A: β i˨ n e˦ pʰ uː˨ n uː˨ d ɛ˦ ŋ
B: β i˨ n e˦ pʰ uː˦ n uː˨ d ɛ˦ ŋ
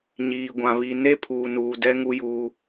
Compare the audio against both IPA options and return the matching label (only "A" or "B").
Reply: A